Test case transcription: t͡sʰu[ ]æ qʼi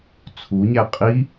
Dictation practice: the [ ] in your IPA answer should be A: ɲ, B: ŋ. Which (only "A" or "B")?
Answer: A